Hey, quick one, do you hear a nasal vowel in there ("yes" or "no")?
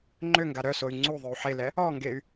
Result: no